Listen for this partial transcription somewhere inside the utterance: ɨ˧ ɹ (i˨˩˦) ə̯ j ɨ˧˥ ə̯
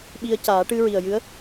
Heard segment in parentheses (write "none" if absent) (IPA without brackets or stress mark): i˨˩